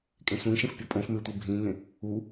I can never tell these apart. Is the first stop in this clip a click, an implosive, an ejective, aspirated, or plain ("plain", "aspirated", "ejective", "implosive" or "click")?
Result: ejective